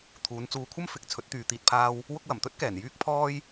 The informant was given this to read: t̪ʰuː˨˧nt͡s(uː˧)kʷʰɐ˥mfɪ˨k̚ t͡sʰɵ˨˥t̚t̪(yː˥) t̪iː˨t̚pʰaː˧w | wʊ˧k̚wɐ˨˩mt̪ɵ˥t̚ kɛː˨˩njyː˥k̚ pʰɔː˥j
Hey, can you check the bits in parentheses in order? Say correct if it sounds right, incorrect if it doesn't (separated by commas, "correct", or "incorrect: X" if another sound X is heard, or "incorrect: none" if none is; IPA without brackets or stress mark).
correct, incorrect: yː˨